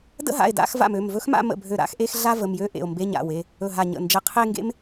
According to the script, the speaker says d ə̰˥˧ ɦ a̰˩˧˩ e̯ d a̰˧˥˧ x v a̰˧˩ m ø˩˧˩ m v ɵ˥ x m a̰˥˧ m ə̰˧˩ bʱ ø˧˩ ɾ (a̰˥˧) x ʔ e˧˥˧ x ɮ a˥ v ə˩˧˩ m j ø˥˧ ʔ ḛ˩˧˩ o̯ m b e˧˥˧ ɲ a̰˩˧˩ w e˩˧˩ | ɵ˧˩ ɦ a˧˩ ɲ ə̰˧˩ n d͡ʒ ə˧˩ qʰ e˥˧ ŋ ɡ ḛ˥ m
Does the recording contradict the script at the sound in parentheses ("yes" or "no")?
no